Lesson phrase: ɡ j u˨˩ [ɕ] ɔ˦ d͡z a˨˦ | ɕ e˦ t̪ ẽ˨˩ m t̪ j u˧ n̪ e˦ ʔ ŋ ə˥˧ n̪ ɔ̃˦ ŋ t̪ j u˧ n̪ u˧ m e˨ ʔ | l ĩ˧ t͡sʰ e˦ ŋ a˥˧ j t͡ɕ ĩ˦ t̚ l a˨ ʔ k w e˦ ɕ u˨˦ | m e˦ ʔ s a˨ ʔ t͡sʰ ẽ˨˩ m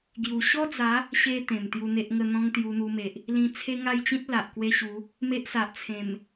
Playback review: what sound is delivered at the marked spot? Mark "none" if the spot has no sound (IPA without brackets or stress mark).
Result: ɕ